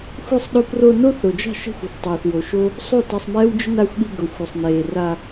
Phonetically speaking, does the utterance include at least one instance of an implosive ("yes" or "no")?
yes